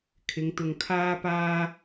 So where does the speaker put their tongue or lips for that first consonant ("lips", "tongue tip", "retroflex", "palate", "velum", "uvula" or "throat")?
velum